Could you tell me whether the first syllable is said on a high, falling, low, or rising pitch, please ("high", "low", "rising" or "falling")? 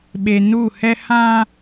low